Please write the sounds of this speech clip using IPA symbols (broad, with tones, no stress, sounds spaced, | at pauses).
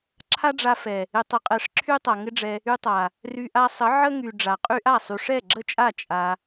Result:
ǁʰ a˦ ɖ͡ʐ a˧ f ɛ˨ | ɪ˨ tˤ ə˨ qʼ ɛ˨ ʂ ǁʰ y˦ tˤ a˨ ŋ ɪ˦ ɖ͡ʐ ɛ˧ | y˧ tˤ a˨ | r y˧ ʔ a˧ sˤ ə˨˦ ʕ ə˦ ŋ y˨ ɖ͡ʐ a˨ qʼ y˦ ʔ a˦˨ sˤ y˨ ʂ ɛ˦˨ ɡ͡ǁ ə˦˨ t͡ʃʼ a˦˨ t͡ʃʼ a˧